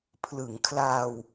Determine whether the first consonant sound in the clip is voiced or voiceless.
voiceless